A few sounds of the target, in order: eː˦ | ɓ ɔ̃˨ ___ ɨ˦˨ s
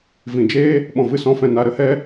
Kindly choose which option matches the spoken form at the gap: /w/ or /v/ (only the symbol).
v